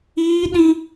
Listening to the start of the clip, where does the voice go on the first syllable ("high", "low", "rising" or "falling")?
high